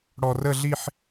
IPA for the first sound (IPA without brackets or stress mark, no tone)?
ɽ